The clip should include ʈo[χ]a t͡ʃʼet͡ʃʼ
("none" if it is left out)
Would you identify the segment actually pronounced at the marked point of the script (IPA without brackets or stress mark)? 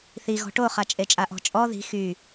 χ